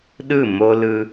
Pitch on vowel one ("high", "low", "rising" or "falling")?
falling